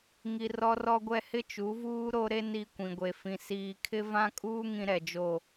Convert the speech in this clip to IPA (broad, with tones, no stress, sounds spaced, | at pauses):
ŋ i˦ r ɔ˦ r ɔ˦ ɡʷ ɛ˦ h ɪ˦ t͡ʃ u˨˦ v uː˦ ɾ o˦ ɾ e˦ n i˦ kʷ ĩ˨ ɡʷ e˨ f ĩ˨ s iː˨ kʰ ɪ˦ v ã˦ kʼ uː˦ ŋ ĩ˦ ɾ ɛ˨ d͡ʒ o˦˨